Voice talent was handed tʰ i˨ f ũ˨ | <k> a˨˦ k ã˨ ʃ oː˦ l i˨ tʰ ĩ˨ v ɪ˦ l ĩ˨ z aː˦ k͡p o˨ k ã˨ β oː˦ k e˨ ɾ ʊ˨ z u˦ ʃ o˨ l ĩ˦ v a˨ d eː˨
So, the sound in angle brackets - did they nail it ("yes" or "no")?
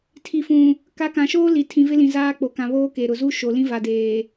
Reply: yes